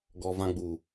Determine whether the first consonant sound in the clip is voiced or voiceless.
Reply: voiced